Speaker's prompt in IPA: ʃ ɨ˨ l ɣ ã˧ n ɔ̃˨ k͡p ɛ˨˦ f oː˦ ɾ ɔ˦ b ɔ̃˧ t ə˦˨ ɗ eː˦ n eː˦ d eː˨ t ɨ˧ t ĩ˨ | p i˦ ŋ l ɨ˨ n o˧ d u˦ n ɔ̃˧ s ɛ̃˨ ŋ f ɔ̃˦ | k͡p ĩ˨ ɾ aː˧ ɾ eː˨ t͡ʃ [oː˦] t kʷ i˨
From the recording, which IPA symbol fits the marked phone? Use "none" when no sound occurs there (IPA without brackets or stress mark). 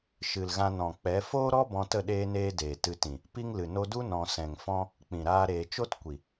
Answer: o˦